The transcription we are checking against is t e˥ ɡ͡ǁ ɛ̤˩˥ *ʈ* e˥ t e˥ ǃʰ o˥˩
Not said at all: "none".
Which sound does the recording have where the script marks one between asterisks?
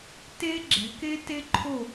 k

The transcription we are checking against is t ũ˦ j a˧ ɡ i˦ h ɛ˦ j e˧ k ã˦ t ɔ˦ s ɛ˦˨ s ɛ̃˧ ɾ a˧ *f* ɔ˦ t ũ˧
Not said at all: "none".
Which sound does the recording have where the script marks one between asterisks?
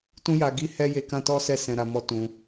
m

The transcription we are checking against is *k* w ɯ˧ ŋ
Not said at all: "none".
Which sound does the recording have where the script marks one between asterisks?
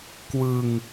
k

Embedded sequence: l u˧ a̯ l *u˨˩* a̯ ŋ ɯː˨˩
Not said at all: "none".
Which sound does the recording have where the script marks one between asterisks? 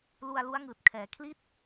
u˦˥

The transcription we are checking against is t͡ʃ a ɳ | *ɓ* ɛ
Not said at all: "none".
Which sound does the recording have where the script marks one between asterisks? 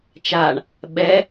ɓ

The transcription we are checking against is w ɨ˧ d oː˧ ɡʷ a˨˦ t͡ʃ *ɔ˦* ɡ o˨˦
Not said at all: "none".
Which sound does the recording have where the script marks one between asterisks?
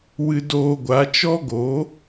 ɔ˦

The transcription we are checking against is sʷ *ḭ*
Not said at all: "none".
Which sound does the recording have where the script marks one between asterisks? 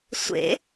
ḛ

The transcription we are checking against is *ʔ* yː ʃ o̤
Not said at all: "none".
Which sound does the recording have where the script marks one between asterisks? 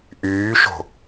ʔ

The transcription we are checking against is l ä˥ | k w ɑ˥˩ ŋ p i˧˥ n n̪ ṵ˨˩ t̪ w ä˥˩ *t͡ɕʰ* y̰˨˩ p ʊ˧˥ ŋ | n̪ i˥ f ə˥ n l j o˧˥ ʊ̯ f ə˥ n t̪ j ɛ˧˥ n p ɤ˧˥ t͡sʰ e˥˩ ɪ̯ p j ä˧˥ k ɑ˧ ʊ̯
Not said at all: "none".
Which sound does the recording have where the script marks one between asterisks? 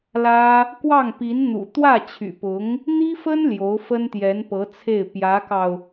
t͡ɕʰ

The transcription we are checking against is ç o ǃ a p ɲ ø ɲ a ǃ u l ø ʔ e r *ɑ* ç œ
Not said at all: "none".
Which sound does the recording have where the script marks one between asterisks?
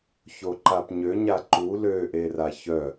a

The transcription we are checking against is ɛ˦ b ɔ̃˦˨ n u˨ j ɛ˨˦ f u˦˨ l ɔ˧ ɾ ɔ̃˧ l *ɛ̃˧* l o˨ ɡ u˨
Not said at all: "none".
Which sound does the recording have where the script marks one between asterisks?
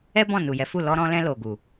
ɛ̃˧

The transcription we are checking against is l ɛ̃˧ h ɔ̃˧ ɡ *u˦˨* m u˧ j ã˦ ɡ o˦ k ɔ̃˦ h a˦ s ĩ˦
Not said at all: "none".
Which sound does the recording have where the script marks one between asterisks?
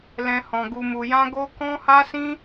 u˧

